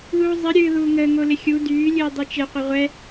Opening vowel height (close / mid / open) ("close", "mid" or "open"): close